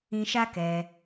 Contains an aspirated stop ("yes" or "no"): no